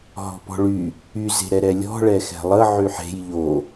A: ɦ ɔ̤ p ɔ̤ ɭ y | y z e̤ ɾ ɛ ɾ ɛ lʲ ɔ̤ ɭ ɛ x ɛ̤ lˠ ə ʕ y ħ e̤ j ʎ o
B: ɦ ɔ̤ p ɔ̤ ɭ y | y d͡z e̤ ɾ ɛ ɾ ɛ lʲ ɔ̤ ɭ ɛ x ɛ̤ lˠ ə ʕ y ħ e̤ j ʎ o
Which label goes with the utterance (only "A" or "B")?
A